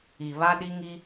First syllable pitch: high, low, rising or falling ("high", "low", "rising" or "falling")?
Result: low